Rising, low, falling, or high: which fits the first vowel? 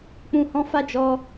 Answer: low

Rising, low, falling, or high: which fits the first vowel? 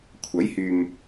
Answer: rising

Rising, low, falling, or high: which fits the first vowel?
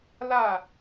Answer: falling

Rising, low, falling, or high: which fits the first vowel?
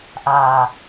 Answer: low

